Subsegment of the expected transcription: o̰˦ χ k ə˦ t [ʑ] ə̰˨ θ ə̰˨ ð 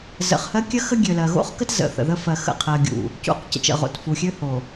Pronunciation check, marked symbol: incorrect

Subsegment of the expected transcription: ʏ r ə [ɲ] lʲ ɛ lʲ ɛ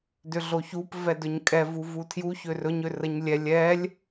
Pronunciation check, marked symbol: correct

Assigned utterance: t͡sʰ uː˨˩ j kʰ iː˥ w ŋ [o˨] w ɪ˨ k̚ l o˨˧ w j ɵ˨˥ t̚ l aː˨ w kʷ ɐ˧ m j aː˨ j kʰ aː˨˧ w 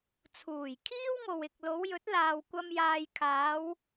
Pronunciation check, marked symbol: correct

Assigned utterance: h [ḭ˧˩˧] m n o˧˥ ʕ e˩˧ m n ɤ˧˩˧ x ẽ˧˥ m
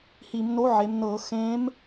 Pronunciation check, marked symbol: incorrect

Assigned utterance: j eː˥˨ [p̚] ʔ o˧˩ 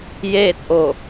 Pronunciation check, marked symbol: incorrect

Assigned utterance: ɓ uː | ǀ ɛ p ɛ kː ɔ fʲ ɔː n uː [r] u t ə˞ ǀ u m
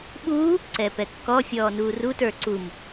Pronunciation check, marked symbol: correct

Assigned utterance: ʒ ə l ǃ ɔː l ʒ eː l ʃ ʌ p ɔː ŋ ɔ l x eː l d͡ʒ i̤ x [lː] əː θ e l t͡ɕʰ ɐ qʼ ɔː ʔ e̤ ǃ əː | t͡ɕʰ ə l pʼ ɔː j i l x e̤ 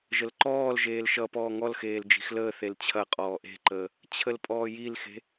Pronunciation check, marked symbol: incorrect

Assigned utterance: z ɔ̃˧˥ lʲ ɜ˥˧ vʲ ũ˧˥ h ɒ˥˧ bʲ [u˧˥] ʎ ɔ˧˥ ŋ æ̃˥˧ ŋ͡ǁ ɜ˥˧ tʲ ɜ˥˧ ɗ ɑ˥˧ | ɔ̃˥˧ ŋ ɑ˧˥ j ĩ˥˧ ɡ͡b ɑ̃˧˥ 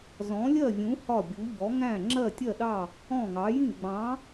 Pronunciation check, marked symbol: correct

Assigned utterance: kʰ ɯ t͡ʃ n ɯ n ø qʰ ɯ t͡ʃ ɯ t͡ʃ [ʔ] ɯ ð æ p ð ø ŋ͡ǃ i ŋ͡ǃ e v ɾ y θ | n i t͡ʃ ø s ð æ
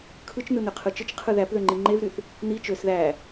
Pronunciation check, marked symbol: incorrect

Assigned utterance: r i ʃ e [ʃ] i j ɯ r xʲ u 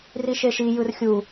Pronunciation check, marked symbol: correct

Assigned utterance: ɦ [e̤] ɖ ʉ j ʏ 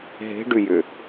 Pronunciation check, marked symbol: correct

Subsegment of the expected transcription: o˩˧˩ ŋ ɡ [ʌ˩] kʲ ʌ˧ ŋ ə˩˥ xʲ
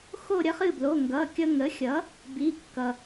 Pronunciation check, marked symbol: incorrect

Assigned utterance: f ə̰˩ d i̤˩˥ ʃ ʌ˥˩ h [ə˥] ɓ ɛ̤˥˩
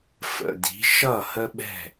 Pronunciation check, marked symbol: correct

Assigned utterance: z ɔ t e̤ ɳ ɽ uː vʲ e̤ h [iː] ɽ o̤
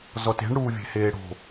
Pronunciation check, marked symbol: incorrect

